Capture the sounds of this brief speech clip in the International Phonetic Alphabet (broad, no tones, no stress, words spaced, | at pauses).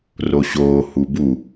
roɕoː hubu